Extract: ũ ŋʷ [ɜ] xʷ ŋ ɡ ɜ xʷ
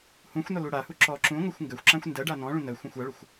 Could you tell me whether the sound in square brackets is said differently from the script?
no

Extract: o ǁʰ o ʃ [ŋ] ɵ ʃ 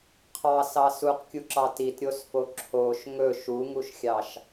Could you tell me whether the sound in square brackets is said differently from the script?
no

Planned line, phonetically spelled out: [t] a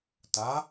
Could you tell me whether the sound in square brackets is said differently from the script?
no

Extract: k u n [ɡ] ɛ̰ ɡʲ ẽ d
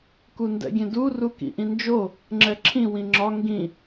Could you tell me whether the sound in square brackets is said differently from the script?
yes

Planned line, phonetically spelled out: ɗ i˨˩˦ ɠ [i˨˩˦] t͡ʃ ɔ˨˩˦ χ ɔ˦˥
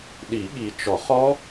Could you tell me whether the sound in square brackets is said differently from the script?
yes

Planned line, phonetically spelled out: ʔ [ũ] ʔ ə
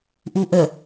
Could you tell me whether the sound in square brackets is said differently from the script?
yes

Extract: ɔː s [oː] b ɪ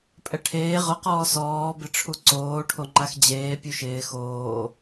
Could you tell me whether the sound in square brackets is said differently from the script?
yes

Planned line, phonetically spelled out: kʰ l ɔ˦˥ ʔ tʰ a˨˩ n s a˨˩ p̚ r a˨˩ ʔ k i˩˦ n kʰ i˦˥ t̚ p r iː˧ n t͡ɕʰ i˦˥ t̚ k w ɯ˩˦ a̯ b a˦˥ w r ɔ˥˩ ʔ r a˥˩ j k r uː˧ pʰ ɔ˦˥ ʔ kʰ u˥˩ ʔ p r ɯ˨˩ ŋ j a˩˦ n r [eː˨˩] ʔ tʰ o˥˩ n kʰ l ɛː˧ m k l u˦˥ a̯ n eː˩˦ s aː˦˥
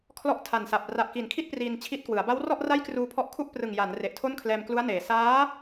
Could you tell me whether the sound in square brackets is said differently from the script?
yes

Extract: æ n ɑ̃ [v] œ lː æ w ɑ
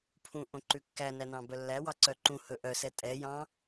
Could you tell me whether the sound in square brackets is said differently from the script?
yes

